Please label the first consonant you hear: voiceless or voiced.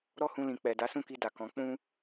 voiced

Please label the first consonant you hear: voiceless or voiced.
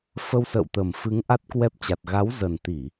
voiceless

